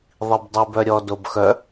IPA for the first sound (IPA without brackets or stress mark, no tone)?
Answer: ðˤ